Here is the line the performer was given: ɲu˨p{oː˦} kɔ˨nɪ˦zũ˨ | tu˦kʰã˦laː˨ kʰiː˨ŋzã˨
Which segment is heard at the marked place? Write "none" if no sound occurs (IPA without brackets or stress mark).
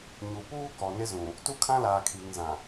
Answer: uː˦